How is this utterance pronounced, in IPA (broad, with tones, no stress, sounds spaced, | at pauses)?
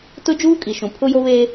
t ʊ˦ d͡ʒ uː˦ kʼ i˨ ʃ ũ˨ pʰ ʊ˦ j o˦ β eː˦